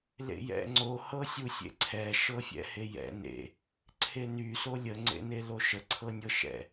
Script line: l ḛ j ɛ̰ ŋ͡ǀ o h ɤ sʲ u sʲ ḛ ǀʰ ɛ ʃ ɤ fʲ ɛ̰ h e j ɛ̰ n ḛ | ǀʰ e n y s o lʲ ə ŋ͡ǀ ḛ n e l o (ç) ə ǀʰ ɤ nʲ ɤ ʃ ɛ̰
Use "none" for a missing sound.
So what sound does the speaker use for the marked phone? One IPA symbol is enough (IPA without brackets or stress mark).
ʃ